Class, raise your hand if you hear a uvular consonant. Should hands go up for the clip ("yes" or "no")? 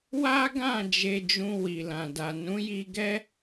no